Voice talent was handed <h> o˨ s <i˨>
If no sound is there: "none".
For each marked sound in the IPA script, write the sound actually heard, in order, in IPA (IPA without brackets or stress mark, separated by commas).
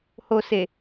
h, e˨